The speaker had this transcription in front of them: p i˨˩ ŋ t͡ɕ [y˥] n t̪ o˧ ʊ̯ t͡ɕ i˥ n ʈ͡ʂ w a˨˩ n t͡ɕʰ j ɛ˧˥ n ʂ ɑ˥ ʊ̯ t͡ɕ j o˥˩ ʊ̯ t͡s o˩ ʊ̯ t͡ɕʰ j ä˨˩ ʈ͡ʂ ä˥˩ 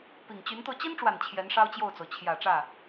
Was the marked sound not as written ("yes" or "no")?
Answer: yes